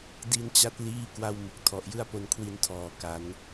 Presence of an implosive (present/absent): absent